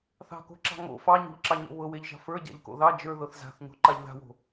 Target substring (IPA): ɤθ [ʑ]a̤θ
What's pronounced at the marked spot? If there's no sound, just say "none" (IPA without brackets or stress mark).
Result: z